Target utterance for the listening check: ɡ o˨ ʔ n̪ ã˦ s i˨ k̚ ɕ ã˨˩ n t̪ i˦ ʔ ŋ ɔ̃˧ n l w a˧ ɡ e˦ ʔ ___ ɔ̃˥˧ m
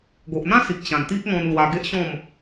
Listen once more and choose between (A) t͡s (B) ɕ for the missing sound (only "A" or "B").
B